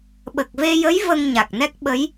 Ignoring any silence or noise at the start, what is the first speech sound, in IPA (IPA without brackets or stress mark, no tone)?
ɓ